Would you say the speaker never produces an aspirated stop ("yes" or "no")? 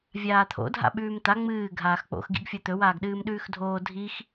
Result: no